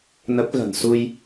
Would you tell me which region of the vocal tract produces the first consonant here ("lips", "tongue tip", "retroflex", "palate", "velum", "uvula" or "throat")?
tongue tip